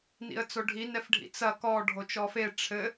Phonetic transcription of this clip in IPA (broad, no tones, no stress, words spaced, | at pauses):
nḭə̯t͡soɖʱi nɛfɖʱḭt͡sɐ kɔ ɖʱot͡ʃɔfe ʈ͡ʂʰɘ